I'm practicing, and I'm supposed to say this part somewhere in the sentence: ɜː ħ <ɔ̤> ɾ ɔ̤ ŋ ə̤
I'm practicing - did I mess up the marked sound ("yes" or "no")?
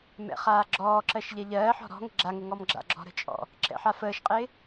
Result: no